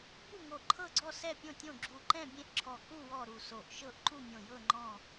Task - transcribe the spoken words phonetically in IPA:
bu˥˨ŋo˧˩ǃʰɤ˥˨ɡ͡ǀɔ˥˨ sɛ˥˨pʲõ˥˨tʲõ˥˨ ɡ͡ǁu˧˩ǃɛ̃˥˨bʲẽ˥˨ʔǁʰɔ˧˩ ku˥˨ wɔ˥˨ɾu˧˩so˧˩ʔ ʃɤ˥˨ʔǃu˥˨mʲõ˧˩jɤ˥˨ ŋ͡ǃɔ̃˥˨

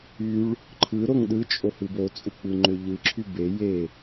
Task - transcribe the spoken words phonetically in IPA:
yɭ | ǃʰɯɾoŋ ɗɯt͡ʃʼohɯ bot͡sʼuk͡pɯŋ͡ǃø ʎɯǁʰy be je

